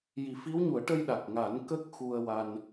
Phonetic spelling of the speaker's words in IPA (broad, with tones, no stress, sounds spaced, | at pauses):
j i˨˩˦ f i˧˥ w ɲ u˨˩˦ ə̯ ʈ ə˧ j ɗ a˨˩ k̚ ŋ a˨˩˦ n k ə˦˥ k̚ x u˧ ə̯ w a˧ n